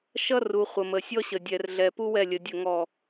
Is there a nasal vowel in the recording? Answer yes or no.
no